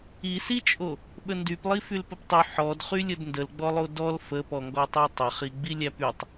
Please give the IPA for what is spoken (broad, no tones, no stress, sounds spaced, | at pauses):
i s i t͡ʃʼ o | ɓ ə n d y p lˠ i f y l p ə p tˤ y ħ ɔ d χ y lʲ ə d n d ə l ɡ͡b ɔ lˠ o d ɔ l f ə p ɔ ŋ ɡ ɔ tˤ ɛ tˤ ə χ i ɡ͡b i lʲ æ p y tˤ